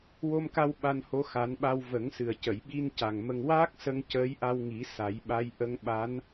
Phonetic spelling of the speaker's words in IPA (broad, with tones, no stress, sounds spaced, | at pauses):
w o˧ m k a˧ w ɓ a˧ n h o˧˥ x a˨˩˦ n ɓ a˧ w v ə˨˩˦ ŋ s ɨ˨˩ ə̯ c ə˨˩˨ j ɓ i˧ n c a˨˩ ŋ m ə˧ ŋ w aː˦˥ k̚ s ə˧ ŋ c əː˧˥ j ʔ a˧ w ŋ i˨˩˦ s a˨˩˦ j ɓ a˧˥ j ʔ ə˧ ŋ ɓ a˧˥ n